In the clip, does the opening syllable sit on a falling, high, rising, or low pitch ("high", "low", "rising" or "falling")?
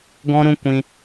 high